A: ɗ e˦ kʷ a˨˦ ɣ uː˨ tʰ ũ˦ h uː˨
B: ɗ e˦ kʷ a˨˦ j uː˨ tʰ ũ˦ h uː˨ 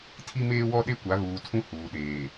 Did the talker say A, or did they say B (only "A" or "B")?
A